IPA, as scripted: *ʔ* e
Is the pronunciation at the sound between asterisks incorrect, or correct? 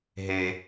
incorrect